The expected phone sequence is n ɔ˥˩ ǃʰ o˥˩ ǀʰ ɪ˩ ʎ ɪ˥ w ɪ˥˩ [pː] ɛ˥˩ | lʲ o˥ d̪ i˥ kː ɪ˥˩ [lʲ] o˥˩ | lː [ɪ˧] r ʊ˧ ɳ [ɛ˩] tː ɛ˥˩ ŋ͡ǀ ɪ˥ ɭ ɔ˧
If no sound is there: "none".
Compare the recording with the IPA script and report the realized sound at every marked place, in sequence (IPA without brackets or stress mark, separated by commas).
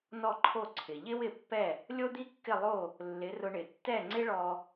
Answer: pː, lˠ, ɪ˩˥, ɪ˩